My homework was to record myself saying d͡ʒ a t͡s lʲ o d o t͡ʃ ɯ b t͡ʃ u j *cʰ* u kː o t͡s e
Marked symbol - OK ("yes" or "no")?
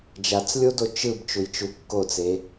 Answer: no